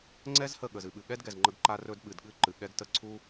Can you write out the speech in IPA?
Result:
ŋ͡ǀɛ˦z hə˦˨ɠə˨z ɨ˨ɓɨ˨ ɠɛ˦dɡɛ˨zŋ͡ǃə˧ɡǃa˧ rɵ˧d ɓɨ˨d ɠɨ˦ǃɨ˨ɠɛ˦ɡtə˦ ǀʰu˦

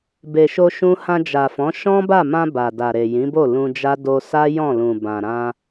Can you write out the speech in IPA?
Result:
be˨ʃo˧ʃũ˧ hã˧d͡ʒa˨fɔ̃˨˦ ʃɔ̃˦ba˦˨mã˧ ba˨da˨ɾe˨ jĩ˨˦bo˦˨lũ˧d͡ʒa˦ do˧sa˦jɔ̃˦˨lũ˨ bã˨ɾã˧

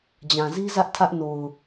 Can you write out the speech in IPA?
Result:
d͡ʑã˨zi˦zä˦ʔ tʰä˦ʔno˨ʊ̯

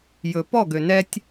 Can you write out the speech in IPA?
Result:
jɵ˨ pɔ˦˨ɡø˨nɛ˦tʲ

